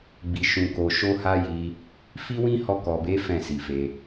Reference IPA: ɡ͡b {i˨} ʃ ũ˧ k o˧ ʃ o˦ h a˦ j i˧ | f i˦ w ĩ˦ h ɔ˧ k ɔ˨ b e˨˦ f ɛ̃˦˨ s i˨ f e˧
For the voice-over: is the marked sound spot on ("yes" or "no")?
no